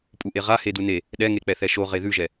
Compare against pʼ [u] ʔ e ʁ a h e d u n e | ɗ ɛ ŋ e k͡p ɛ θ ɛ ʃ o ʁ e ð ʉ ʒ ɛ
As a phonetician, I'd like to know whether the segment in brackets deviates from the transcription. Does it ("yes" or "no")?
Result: no